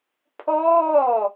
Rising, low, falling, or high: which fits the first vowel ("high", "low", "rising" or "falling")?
falling